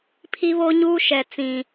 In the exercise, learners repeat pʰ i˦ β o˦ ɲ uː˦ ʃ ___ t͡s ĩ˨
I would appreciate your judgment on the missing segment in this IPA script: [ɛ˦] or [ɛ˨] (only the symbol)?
ɛ˨